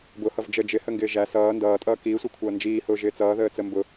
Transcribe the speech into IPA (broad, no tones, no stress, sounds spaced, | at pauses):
b ʊ h ʌ v d͡ʒ ə d͡ʒ ɪ h ə ŋ ɡ ɪː ʒ æ s ʌː n d ʌː tʼ ʌː k iː sʷ i kʷʰ ʌː n d͡ʒ iː h ʊː ʒ ɪː t͡s ʌː ð əː t͡s ə m b ʊ